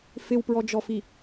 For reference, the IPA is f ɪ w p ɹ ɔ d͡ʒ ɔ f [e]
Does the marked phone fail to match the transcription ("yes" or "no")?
yes